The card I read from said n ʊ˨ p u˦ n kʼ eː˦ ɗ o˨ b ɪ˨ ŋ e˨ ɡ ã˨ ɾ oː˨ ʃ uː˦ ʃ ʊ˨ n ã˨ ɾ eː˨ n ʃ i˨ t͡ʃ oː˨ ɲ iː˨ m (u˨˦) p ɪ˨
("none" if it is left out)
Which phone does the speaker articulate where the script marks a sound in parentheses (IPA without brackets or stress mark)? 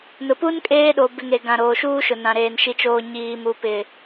u˨